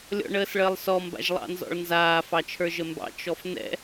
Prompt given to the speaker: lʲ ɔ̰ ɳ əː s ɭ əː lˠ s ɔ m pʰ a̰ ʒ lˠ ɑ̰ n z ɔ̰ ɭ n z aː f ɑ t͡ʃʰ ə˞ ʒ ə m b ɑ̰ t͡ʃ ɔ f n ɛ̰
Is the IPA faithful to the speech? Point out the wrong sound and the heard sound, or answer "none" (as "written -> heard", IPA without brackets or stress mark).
pʰ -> b